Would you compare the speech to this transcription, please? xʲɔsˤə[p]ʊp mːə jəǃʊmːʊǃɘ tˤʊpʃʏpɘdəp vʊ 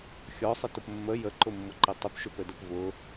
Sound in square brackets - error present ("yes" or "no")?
yes